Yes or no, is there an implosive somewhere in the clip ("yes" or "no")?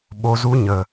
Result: yes